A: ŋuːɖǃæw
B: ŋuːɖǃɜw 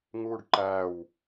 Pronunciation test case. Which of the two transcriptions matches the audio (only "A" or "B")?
A